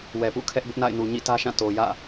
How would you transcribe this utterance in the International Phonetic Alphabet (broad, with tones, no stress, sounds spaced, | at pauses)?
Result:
w ɛ˨ p ṵ˦˨ kʰ ɛ˦ ʔ b ʊ˦ ʔ n a̰˦˨ ɪ̯ n u˨ ɲ ḭ˦˨ t ä˦ ʃ ã˦˨ t o˨ j ä̰˦˨